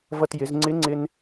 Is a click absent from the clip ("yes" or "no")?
no